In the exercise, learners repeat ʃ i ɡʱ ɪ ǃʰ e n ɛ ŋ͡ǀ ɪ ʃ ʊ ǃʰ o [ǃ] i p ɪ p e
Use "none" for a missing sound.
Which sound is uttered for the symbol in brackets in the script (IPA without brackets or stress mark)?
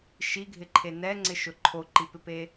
ǃ